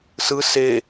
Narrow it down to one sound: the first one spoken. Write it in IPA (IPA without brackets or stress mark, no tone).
s